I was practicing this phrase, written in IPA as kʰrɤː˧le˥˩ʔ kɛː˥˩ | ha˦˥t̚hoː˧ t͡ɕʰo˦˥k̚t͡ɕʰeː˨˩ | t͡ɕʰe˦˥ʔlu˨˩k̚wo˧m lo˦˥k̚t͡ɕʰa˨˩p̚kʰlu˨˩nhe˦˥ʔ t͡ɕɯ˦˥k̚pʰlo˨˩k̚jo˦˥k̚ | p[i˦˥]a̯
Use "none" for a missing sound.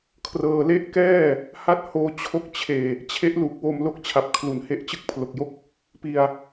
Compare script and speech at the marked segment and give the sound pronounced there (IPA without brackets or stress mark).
i˧